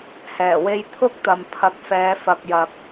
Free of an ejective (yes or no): yes